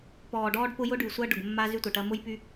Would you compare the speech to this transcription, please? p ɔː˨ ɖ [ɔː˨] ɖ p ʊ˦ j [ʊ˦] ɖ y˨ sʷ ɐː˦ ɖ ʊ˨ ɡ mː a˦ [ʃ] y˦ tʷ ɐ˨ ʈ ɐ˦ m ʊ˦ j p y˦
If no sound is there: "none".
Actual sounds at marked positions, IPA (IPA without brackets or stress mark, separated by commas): ɔː˦, ʊ˦, z